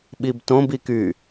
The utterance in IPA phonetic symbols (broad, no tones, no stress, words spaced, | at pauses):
ɓibtõbiky